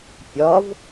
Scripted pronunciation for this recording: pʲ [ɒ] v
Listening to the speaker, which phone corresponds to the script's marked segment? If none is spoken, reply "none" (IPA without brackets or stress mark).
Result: ɒ